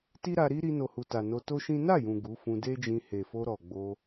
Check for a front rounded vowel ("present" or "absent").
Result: absent